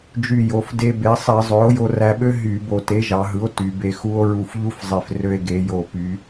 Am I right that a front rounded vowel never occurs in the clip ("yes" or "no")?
no